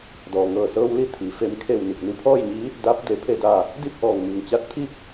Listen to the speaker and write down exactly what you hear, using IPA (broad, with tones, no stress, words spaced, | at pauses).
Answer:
dɔː˩ŋɤː˧˩sɤː˧wli˧˥ t̪ʰi˩˧ fe˩˧mkʰe˧˩w ni˧˩k̚ni˧pʰɔː˥˨jɲi˧˥ | da˧˥p̚ de˩˧pʰe˧˩da˧˩ | di˥˨p̚ʔɔː˧˩ŋmi˩ŋt͡ɕa˧t̚ t̪ʰi˥˨k̚